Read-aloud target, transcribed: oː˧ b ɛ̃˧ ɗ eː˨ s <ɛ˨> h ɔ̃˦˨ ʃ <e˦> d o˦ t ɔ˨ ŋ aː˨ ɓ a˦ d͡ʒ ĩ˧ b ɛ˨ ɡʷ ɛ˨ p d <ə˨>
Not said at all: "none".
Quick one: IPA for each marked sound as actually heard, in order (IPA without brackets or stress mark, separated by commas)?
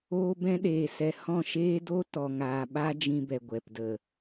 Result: ɛ˨, eː˦, ə˨